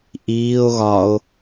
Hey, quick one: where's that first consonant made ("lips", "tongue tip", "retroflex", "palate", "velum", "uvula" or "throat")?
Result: throat